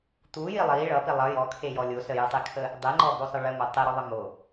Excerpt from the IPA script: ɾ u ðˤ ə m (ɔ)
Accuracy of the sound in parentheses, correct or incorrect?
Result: incorrect